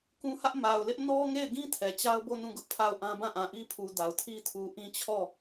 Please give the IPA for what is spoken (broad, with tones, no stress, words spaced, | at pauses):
kũ˦hä˦ʔ ma˨ʊ̯lɪ˦ʔ nɔ˦ ŋe˦˨ɪ̯ɡĩ˦ tʰɛ˨t͡ɕa˦ʊ̯bo˦˨ nũ˦˨ɡʊ˦ʔpʰa˦˨ʊ̯ʔã˦ bã˦˨ʔã˨ʔi˦pʰu˨ da˨ʊ̯tʰi˦ tʰu˨ ʔĩ˦t͡ɕʰɔ˦˨